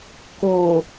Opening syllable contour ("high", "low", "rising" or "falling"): low